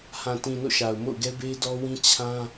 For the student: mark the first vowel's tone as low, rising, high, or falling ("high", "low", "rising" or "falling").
low